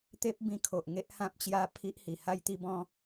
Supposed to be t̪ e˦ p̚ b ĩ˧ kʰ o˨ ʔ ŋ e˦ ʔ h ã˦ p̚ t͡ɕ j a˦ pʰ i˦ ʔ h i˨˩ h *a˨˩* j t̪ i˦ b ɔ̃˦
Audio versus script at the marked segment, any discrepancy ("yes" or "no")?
yes